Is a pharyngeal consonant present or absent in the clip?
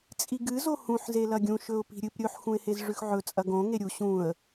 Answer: present